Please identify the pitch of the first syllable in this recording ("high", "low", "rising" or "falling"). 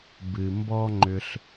low